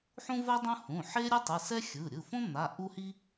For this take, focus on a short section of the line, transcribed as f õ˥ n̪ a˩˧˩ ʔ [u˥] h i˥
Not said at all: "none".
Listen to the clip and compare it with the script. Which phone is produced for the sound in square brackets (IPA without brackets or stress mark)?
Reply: u˥